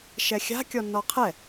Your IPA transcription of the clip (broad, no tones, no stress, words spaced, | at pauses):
ʃɛxʲa̤ kʲɔnːɔqʰɛ